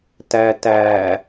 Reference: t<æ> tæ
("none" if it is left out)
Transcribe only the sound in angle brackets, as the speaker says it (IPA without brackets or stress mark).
æ